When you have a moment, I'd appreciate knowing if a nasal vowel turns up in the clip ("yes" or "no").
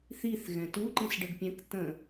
yes